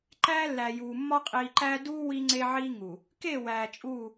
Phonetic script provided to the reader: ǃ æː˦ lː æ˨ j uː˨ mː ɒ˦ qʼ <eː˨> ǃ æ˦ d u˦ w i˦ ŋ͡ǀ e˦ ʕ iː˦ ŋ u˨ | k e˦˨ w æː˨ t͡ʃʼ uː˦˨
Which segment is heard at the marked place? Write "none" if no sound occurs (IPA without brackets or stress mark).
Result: iː˨